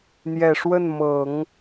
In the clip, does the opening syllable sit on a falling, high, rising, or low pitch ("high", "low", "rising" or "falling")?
low